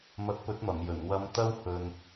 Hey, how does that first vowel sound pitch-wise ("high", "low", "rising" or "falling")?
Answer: rising